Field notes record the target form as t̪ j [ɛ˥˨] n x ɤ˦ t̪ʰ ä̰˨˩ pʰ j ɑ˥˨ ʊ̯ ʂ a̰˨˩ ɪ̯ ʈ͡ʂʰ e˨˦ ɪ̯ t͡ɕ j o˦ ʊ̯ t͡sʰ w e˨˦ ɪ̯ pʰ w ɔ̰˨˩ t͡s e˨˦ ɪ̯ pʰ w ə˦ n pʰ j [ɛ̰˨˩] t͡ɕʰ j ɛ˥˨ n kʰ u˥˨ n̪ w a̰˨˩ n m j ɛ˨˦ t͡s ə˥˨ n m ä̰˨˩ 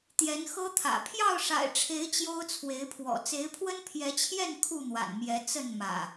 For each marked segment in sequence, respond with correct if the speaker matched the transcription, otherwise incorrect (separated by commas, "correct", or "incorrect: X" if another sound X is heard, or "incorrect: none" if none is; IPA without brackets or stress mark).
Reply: incorrect: ɛ˨˦, incorrect: ɛ˨˦